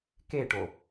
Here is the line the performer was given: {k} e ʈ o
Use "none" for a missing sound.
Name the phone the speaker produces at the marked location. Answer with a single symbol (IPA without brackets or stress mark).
k